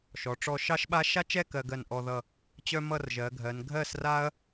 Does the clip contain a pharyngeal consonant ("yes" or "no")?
no